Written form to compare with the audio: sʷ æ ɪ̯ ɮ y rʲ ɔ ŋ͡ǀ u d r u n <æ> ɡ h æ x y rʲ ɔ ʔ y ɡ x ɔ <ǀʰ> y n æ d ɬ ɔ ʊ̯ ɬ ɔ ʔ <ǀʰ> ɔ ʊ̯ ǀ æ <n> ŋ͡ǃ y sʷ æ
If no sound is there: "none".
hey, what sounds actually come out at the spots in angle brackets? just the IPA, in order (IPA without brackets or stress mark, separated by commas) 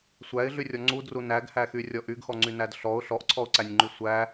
æ, ŋ͡ǀ, ǀʰ, nʲ